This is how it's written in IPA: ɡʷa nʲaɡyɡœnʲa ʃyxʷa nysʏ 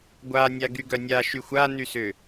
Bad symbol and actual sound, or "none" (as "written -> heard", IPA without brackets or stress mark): none